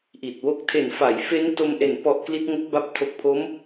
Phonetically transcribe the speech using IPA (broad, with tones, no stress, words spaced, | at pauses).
ʔi˨˩t̚wo˥˩k̚ tʰe˨˩nfa˩˦jfe˦˥n to˧mʔe˨˩n pɔ˨˩ʔ kli˦˥t̚ŋo˦˥k̚ba˦˥p̚ tʰo˨˩k̚pʰo˦˥m